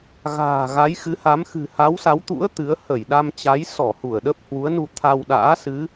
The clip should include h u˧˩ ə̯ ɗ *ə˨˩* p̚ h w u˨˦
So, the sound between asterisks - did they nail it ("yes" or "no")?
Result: no